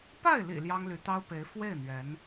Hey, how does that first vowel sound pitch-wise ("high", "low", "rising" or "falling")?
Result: falling